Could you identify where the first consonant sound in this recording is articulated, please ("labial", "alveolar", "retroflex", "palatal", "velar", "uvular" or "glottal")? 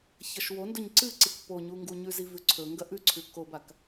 palatal